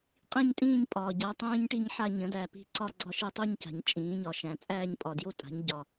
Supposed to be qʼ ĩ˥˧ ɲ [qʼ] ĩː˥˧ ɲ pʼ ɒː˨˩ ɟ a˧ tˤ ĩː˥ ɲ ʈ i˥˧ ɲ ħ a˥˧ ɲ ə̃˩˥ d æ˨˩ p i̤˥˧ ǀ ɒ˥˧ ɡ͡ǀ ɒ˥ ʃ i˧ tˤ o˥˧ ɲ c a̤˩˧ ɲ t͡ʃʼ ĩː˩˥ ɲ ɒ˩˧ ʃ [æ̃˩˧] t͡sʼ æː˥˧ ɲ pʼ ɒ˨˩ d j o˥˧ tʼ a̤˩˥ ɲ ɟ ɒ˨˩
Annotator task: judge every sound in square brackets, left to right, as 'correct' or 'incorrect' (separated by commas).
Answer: incorrect, correct